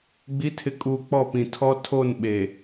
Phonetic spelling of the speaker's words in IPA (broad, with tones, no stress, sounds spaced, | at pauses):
ɡ͡b i˨˦ tʰ ɪ˨ kʼ uː˨ k͡p ɔ˦˨ p ĩ˨ tʰ ɔ˦ tʰ o˦˨ n ɓ eː˨